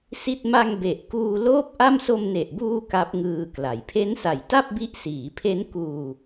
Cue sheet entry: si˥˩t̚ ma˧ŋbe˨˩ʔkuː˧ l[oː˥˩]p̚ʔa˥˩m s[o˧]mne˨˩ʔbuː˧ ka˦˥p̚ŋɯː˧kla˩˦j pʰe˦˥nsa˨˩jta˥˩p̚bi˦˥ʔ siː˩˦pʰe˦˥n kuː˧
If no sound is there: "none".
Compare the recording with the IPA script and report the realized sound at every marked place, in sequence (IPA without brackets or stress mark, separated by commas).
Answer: oː˥˩, o˧